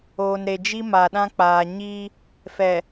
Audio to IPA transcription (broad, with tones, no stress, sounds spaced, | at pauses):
oː˨ n ɾ e˨ d͡ʒ i˦ m a˨ ɗ ã˦ k͡p aː˨ ɲ iː˦ | f ɛ˨